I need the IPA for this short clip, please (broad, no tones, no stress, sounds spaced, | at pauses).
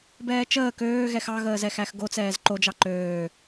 b ɛː t͡ʃ əː k øː ɣ ɛ x ɑ ɣ əː z ɛ x æ x ɡ o t͡s ɛː z ǃ o d͡ʒ ɑ ǃ øː